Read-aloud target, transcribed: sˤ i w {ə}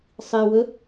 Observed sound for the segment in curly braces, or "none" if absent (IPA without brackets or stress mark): ə